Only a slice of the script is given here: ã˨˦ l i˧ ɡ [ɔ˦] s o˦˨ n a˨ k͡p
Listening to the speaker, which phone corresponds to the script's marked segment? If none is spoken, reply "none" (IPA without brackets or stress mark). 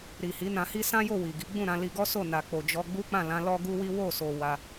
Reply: ɔ˦